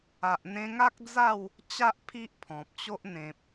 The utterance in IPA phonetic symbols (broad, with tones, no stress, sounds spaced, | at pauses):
a˨ ʔ n̪ ẽ˧ ŋ a˦ k̚ d͡z a˥˧ w | t͡ɕ a˦ ʔ pʰ i˦ ʔ pʰ ɔ̃˨ p̚ t͡ɕ o˦ ʔ n̪ ẽ˨ p̚